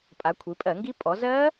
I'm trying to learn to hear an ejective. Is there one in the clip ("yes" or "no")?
yes